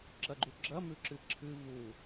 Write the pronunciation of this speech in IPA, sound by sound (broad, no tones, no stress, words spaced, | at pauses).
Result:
ǁɐɡ͡ǃuɡ͡ǁɐ mʉǁɨǁʰɨ vu